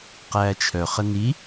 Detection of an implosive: absent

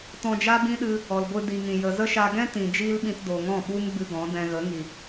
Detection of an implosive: present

